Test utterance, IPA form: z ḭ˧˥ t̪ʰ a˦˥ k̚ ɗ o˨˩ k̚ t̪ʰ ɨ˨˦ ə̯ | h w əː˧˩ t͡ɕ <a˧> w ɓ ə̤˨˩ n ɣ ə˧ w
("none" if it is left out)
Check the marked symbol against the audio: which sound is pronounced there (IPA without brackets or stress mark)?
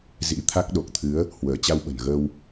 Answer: a˧